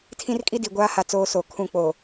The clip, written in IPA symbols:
tʰ ĩ˦ r kʼ i˦ d i˨ ɡʷ aː˦ h a˨ t͡s oː˦ s o˨ kʰ ũ˦˨ k͡p o˨

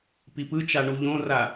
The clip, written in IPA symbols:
p i p ɯ t͡ʃ a ɳ u ʎ õ r a

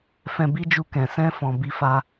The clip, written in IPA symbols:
f ɛ̃˧ b i˦ d͡ʒ u˧ k ɛ̃˨ s ɛ̃˧ f ɔ̃˨ b i˧ f a˦

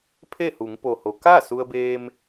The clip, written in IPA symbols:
pʰ e˥˨ h u˩˧ ŋ p o˩ h o˩˧ k a˥˨ s u˧ ə̯ b eː˧ m

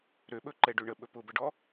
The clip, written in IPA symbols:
ɾ ø ɓ ɵ ǃ ɛ ɖ ø ɳ ə ɓ ɵ p ʊ b ə ɖ ɔ

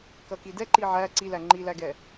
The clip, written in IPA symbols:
k ʌ k i d ɛ ǃ i ʕ æ ǀ i l æ ŋ͡ǃ i l æ ɡ ɛ

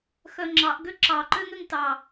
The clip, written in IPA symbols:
x œ ŋ͡ǁ ɑ ʔ ɡ ø ǁ ɑ ǃ ø ŋ ø ŋ t ɑ

